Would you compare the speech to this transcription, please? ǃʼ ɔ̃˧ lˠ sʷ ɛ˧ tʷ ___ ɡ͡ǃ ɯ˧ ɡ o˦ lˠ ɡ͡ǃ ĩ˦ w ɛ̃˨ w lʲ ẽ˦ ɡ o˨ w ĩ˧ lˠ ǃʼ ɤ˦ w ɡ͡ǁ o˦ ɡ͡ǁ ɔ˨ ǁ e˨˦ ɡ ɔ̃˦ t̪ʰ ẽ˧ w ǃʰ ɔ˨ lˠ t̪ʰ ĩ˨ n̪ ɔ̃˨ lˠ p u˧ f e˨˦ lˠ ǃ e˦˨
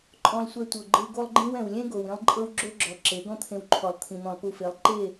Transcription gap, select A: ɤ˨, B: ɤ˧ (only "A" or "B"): A